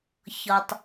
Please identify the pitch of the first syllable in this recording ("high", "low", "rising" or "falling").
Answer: low